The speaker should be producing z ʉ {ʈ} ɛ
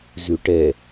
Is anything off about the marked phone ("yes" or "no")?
no